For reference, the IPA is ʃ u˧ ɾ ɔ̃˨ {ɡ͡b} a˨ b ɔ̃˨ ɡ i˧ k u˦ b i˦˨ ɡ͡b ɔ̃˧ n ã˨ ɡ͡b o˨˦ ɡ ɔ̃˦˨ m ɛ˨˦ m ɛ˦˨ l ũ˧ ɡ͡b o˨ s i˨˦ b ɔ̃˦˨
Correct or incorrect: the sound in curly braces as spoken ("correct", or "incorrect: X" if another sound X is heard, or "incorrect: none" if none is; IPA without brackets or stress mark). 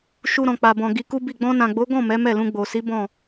incorrect: k͡p